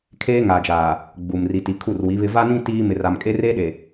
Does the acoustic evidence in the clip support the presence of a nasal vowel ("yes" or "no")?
yes